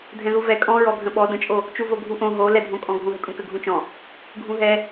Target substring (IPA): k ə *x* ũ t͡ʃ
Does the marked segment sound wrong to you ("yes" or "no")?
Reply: yes